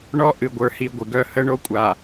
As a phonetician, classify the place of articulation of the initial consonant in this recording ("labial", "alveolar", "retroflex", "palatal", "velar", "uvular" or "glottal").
retroflex